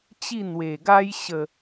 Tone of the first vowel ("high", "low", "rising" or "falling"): falling